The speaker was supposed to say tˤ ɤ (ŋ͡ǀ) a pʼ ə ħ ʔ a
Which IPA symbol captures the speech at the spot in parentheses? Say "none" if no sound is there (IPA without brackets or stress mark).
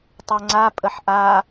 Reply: ŋ͡ǀ